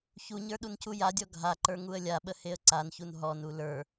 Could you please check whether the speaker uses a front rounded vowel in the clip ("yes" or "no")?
no